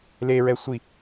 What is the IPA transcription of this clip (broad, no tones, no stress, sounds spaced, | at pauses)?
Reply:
l e ɹ ɛ sʷ i